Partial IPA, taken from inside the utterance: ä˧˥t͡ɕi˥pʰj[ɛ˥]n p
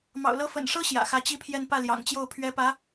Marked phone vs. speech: incorrect: ɛ˥˧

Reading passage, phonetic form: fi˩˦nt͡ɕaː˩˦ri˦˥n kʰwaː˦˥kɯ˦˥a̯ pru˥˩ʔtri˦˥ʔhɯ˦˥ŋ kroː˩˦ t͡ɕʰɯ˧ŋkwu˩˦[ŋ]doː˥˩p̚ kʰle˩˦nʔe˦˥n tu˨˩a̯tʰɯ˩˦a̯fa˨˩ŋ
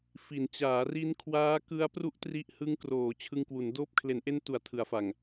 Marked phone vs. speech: incorrect: n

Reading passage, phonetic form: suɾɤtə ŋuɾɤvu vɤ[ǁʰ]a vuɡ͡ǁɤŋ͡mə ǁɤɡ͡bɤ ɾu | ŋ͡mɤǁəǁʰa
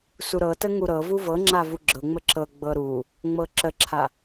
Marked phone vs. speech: incorrect: ŋ͡ǁ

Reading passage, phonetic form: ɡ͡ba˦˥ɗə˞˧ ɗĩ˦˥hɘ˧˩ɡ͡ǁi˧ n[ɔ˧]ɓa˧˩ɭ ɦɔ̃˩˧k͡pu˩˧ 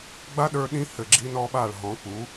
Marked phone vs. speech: correct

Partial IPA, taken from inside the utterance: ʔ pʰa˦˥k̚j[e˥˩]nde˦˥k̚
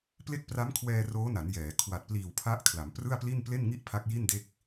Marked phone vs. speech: incorrect: i˥˩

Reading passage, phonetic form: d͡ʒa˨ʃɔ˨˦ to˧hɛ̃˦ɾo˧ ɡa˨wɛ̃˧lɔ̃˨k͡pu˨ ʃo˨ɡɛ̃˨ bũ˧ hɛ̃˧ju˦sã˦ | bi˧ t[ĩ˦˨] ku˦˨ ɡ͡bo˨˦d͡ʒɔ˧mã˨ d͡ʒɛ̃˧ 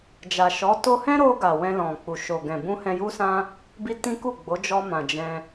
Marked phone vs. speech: incorrect: ĩ˦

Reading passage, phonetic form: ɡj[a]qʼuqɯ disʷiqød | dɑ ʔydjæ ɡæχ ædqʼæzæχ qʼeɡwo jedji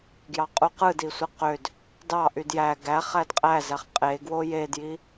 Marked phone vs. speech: incorrect: ɑ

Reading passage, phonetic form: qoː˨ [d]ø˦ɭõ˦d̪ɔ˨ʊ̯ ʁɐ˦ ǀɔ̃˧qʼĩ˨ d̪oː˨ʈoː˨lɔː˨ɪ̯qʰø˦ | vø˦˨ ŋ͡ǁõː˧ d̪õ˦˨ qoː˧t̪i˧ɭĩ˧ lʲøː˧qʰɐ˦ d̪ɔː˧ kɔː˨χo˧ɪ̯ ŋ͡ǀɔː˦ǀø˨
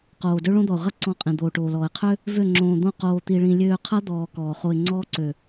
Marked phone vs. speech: correct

